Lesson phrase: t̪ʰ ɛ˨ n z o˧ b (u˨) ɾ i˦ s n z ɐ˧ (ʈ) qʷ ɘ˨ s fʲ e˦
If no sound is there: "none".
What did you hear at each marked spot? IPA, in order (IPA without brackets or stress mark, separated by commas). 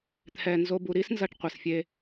u˨, ʈ